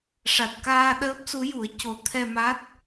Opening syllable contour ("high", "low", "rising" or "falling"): low